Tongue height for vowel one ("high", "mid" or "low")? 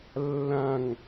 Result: low